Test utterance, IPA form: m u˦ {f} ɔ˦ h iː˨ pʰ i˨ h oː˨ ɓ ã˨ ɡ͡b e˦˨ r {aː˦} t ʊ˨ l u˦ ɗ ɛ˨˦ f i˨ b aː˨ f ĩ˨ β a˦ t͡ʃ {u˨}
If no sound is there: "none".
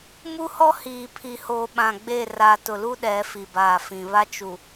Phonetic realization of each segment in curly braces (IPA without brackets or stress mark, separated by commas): h, aː˨, u˨